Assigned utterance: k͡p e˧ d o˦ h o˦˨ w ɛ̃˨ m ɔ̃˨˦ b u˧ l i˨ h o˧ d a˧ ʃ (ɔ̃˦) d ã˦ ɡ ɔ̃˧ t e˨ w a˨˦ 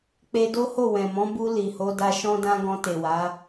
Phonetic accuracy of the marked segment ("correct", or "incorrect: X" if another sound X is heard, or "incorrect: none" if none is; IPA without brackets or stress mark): correct